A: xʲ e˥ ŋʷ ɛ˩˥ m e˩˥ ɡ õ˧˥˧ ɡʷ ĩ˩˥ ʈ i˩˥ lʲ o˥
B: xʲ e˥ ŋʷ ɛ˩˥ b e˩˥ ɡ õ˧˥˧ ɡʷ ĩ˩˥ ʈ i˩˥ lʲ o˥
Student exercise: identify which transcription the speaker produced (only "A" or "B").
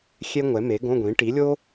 A